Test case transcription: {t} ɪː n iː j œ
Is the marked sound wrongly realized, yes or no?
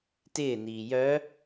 no